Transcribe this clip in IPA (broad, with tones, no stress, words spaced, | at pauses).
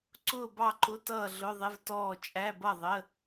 ǀʊː˥˨bɑ˥˨ǃʊ˧˥˧ tʌː˥˨ɮʊ˧˥˧ðˤɪ˧˥˧vtɔː˥˨ t͡ʃʼæ˧˥˧bʌ˥˨ðˤə˧˥˧